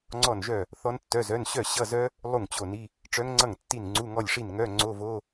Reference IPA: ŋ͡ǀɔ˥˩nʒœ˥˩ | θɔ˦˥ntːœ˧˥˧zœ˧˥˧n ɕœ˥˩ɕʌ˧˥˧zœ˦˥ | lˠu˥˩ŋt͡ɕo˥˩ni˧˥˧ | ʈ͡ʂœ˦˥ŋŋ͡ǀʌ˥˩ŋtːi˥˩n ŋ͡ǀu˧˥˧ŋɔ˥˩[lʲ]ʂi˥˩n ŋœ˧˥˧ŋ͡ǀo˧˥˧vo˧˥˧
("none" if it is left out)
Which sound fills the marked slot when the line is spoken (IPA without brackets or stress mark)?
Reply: lʲ